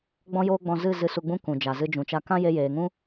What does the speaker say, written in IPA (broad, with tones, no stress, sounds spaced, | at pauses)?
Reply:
ɡ͡b ɔ̃˦ j oː˦ ɡ͡b ɔ̃˧ z ɨ˦˨ z ɨ˧ s u˧ ɡ͡b ũ˦ k ũ˨ d͡ʒ a˨ z ɨ˧ d͡ʒ ũ˨ t͡ʃ a˧ k ã˦ j e˧ j eː˨ ŋ ũ˦